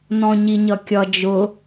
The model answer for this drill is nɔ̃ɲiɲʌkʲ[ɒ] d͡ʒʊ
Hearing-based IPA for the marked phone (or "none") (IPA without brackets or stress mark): ʌ